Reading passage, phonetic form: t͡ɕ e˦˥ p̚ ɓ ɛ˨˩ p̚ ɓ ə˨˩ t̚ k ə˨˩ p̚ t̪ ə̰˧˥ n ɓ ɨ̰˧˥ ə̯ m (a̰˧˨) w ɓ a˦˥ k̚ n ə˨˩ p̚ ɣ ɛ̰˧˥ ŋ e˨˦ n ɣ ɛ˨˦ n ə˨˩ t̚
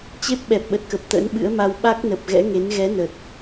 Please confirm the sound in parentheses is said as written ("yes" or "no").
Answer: no